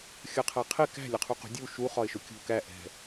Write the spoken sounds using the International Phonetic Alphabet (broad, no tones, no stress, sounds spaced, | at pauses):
xʲ ʌ qʰ æ qʰ ɪ k æ̤ lʲ ʌ qʰ u q ṳ dʲ u ʃ u χ ɒ ɪ̯ ʃ ʊ kʲ ṳ k æ ʔ ɛ̤